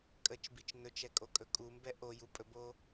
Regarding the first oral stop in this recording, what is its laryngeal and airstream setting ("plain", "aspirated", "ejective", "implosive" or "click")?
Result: ejective